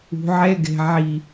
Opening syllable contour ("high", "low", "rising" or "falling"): low